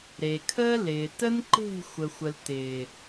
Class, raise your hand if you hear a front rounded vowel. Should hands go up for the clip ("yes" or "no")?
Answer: no